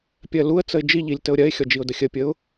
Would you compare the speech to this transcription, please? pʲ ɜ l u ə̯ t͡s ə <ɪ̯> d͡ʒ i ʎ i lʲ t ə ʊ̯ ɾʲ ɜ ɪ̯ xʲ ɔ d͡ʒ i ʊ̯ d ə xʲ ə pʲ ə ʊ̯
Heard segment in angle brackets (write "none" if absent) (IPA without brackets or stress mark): ɪ̯